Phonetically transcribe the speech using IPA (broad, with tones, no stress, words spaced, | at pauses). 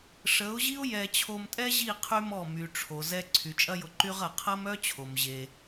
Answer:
ʂə˨˦ʊ̯ʑi˦ʊ̯ jɛ˧ t͡ɕʰo˧mtʼɛ˦ʑi˦˨ qʰy˦mɔ˦˨ my˨ʈ͡ʂʰo˨ zɛ˧ ǀʰy˨t͡ʃʼɐ˦jʊ˧ǃy˦ʁ ɐ˨qʰɐ˦mœ˦t͡ɕʰo˨m ʑe˧